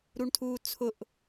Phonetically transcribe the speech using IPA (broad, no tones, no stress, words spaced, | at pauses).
ɾuɳtʰuːt͡sʰʊʔ